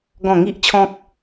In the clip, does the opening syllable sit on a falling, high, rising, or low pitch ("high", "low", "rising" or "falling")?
falling